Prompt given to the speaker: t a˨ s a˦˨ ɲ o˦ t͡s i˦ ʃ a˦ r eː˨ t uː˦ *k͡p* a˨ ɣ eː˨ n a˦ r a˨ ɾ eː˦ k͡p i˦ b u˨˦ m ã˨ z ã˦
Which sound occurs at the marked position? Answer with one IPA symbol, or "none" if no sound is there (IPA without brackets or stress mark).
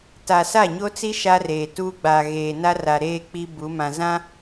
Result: ɡ͡b